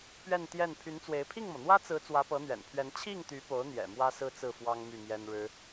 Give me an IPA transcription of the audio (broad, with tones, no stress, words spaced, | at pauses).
pɥɛ˥˧n t̪jɛ˥˩n pʰy˧˥nt͡swe˧˥ɪ̯ pʰi˥˩ŋmɤ˩n̪wä˥t͡sɹ̩˧˥ t͡swä˧˥pɤ˧˥n̪ɥɛ̰˨˩npʰɥɛ˧˥n t͡ɕʰi˥˩ŋt̪y˧˥po˧˥ʊ̯n̪jɛ̰˨˩ mwä˥sɹ̩˥˧t͡sɹ̩˥˩ fwɑ˥ŋmy˥˩ mjɛ˥nɻɻ̩˥